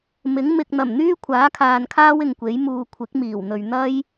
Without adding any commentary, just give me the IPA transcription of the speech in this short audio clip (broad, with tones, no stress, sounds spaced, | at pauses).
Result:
m ɪ˨˥ ŋ m ɪ˨ k̚ n̪ ɐ˨˩ m n̪ yː˥ kʷʰ aː˨˥ kʰ aː˨ n kʰ aː˥ w ɪ˨ ŋ kʷ e˨˥ j m uː˨ kʷʰ ɪ˨˥ k̚ m iː˨˩ w n̪ ɵ˨ ɥ n̪ ɐ˥ j